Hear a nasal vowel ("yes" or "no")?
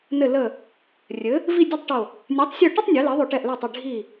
no